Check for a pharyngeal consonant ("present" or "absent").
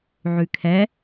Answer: present